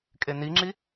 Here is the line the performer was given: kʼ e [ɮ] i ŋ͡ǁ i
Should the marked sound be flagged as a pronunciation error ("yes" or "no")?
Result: yes